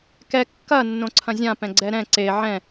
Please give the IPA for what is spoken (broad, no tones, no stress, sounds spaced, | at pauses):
k ɛ kː ɐ nː õ ǀʰ ɐ̃ zʲ ã p ɛ̃ ɡ͡ǀ ɛ ɾ ɛ̃ ǀ e ʕ ɛ̃